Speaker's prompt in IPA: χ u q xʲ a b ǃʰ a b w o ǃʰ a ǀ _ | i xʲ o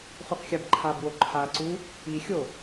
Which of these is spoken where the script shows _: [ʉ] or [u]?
u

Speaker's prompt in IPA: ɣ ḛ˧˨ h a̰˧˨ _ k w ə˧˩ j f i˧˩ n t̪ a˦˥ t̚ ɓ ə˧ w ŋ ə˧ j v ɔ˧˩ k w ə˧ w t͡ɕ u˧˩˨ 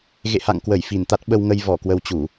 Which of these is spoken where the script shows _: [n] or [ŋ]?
ŋ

